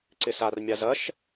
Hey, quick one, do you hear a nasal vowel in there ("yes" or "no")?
no